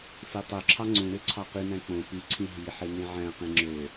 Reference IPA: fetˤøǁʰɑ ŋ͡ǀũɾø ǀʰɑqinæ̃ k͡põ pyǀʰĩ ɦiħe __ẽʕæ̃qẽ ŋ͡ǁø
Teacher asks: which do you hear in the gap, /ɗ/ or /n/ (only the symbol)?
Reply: n